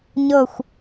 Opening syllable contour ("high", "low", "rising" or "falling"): falling